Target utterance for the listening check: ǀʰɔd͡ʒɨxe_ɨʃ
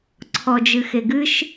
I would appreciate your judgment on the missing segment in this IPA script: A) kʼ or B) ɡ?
B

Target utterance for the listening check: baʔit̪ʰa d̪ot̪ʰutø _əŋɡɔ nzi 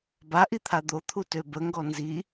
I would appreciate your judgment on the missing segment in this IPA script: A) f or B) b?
B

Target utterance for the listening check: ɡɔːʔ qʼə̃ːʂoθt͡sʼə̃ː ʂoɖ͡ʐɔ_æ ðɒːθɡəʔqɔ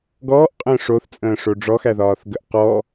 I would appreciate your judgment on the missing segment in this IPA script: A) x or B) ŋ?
A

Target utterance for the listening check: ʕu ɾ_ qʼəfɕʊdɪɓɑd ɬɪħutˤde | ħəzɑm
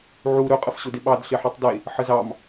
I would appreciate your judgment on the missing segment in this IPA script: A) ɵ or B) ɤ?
A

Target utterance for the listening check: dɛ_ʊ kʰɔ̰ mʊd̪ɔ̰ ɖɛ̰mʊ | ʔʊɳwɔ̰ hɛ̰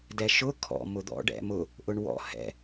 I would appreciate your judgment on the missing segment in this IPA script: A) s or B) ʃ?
B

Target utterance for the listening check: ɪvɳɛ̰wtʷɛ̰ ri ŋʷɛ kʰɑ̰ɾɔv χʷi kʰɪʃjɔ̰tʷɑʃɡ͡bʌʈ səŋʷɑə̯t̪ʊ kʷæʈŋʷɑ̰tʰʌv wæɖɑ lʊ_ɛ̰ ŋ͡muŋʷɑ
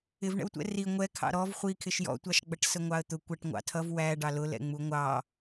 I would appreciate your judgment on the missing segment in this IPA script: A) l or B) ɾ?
A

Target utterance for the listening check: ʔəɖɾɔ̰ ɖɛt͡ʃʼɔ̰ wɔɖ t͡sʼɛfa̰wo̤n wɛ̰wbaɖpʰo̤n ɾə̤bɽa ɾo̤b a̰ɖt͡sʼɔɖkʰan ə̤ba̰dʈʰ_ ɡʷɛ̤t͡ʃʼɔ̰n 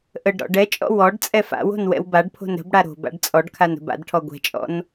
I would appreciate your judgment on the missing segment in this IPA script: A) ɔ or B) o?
A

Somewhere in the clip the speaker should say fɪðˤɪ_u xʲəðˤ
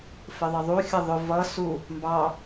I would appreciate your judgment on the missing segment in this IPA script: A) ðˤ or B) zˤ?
A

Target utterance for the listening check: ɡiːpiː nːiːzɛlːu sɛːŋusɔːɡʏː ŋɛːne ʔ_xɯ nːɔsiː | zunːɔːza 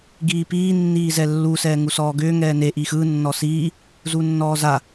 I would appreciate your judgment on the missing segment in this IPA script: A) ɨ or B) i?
B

